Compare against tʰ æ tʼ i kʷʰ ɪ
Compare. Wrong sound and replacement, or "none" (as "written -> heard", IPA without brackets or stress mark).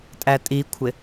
tʰ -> tʼ